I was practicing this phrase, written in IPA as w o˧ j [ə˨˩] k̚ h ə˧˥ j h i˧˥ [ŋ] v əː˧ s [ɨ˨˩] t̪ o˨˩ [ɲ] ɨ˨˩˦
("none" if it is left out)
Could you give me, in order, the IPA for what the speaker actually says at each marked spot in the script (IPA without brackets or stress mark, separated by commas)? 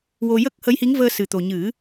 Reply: ə˦˥, ŋ, ɨ˨˩, ɲ